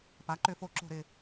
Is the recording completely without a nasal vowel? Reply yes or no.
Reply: yes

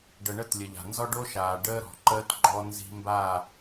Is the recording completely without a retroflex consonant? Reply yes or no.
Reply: no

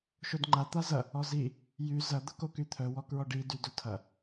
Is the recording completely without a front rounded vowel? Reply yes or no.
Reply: no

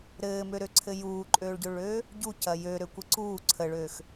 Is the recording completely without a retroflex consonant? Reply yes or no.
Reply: no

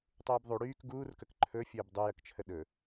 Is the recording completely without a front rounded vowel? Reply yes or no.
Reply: no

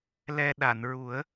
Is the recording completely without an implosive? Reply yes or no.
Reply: no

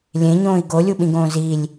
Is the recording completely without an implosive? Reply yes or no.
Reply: no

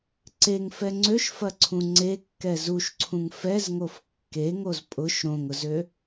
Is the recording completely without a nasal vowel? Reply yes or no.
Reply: no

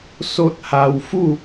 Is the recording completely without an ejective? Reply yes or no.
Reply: yes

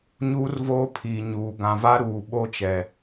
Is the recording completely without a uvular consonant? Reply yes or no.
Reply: yes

